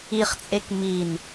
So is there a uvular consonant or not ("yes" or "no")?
yes